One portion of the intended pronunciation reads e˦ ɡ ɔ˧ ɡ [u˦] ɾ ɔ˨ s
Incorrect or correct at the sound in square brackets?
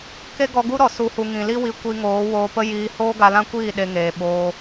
correct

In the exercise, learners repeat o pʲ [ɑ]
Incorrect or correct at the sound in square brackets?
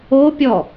incorrect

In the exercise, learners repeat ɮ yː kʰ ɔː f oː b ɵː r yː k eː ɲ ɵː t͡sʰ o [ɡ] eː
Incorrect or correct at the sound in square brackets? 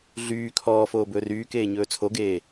correct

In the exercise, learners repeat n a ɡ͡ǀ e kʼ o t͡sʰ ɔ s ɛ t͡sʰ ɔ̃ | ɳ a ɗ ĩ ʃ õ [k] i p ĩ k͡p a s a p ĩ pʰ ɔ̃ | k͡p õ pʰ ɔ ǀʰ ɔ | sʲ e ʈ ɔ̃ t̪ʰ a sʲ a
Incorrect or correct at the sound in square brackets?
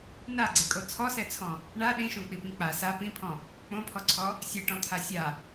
incorrect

